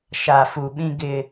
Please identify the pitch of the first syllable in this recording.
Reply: low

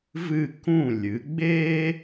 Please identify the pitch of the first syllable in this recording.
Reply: falling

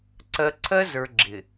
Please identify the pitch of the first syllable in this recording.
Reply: low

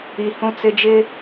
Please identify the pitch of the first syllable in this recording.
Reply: high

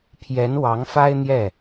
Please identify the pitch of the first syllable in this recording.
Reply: rising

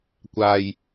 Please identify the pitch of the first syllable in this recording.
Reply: low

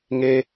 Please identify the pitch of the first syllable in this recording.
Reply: high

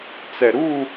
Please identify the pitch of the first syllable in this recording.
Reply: low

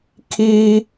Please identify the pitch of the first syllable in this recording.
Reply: high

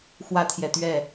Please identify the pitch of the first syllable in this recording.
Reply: high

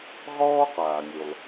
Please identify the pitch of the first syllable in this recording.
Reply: high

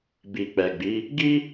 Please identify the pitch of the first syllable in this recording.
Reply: low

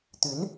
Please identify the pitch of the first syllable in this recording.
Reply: rising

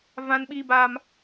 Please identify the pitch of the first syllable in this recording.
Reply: high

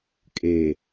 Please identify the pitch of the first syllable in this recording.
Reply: low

